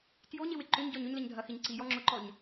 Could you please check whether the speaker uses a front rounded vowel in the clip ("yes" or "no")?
yes